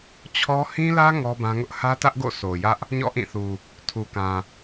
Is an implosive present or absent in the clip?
absent